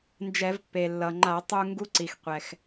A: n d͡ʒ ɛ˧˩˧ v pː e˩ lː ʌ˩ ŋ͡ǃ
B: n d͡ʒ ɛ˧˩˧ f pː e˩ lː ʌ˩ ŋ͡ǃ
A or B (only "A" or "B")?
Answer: A